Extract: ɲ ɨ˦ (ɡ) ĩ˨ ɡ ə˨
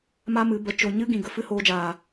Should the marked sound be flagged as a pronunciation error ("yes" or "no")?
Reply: no